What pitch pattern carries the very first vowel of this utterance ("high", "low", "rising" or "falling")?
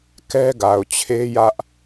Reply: high